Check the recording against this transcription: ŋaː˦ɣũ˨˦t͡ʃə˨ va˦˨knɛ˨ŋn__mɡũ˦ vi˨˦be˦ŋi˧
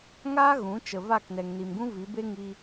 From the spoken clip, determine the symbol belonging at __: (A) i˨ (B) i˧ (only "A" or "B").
A